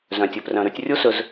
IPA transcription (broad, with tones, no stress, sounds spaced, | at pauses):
z œ̃˩ tʲ ɵ˩ p r œ̃˩ ɾ ʉ˨ tʲ rʲ u˦ s ɵ˨ z